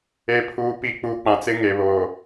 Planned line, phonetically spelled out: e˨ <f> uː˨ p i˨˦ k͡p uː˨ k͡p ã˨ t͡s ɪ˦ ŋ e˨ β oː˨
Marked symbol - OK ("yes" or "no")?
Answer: no